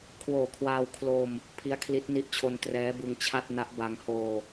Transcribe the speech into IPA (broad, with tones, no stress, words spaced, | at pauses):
kʰwoː˨˩kʰwaː˧w kʰlo˧m | pʰi˦˥a̯kʰli˦˥t̚ ni˦˥ʔt͡ɕʰo˧n trɛː˦˥bɯ˧ŋt͡ɕʰa˥˩t̚ na˦˥ʔba˧ŋ hoː˧